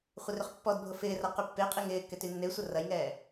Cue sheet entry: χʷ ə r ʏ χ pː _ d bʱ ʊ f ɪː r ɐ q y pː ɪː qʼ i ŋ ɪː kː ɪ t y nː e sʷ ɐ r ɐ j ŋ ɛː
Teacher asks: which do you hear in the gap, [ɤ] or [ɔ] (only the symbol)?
ɔ